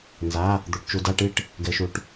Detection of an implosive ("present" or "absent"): absent